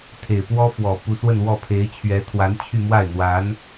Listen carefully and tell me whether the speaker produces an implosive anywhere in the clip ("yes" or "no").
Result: no